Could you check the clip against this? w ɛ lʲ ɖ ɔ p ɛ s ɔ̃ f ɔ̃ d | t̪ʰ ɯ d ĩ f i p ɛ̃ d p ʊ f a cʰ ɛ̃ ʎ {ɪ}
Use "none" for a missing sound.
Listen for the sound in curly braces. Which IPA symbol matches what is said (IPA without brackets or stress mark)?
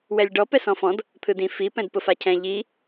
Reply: i